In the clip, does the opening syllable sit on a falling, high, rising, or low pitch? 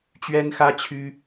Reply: high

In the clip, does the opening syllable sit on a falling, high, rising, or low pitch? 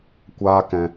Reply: high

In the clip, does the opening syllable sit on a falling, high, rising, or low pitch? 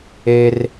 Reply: high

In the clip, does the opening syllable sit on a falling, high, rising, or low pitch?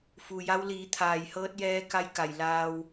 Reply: low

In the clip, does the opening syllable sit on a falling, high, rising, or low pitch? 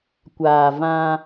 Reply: low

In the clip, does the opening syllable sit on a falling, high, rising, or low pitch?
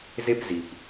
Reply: high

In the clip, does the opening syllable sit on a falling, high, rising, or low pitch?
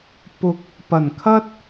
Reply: rising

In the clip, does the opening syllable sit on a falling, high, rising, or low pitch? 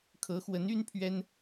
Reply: rising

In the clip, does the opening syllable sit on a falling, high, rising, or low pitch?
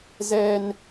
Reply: high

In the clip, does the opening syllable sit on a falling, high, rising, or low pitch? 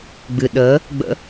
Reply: low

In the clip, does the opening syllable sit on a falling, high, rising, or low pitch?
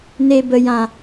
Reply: low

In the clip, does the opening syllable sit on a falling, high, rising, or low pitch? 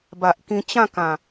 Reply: low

